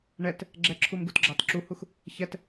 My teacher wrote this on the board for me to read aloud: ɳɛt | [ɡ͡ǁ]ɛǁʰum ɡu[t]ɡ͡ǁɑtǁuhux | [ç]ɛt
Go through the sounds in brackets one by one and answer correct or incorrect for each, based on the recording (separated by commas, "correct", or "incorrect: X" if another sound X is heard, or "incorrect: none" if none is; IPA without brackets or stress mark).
correct, correct, correct